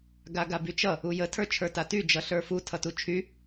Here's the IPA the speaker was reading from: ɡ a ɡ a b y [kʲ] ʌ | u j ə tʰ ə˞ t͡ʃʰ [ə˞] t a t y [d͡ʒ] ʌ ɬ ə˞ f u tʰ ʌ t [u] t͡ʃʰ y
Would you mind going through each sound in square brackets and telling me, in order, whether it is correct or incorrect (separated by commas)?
incorrect, correct, correct, correct